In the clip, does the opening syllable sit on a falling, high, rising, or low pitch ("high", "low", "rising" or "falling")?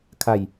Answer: low